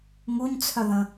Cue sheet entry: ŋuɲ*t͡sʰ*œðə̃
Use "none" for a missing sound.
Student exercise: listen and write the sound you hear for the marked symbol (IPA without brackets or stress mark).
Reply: t͡sʰ